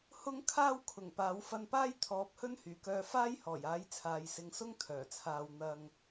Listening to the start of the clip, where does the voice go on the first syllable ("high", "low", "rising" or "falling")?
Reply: high